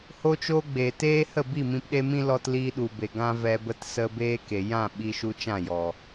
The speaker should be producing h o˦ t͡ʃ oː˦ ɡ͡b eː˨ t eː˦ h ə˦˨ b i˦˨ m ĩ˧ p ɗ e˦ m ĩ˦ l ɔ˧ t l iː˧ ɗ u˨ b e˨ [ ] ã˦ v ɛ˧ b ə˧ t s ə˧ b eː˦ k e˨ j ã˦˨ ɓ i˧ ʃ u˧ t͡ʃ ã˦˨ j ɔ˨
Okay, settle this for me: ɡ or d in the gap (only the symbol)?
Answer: ɡ